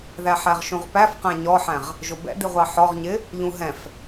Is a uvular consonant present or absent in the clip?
present